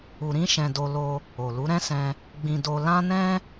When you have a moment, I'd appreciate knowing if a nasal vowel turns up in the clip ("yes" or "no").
yes